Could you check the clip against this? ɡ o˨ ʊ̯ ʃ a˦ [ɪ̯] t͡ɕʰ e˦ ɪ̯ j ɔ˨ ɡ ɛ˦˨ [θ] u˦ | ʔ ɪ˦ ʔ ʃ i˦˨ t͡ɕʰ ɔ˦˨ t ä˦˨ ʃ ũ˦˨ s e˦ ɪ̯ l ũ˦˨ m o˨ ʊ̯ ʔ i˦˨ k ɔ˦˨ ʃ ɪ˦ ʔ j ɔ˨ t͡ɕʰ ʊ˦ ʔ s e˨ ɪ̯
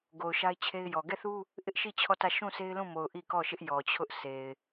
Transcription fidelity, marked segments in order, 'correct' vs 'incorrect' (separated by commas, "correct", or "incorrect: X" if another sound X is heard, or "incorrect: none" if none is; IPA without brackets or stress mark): correct, correct